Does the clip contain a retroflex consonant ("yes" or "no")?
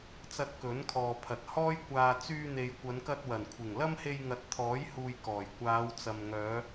no